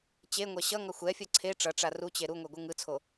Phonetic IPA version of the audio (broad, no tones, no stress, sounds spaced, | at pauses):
t͡ɕ e ŋʷ ɛ ɕ ʌ ŋ ʌ xʷ ɛ fʲ ʌ ǀʰ e ʈ͡ʂ ʌ ʈ͡ʂ a r u t͡ɕ e ɾ u ŋʷ ɛ ɡʷ ɯ ŋ ɯ t͡sʰ o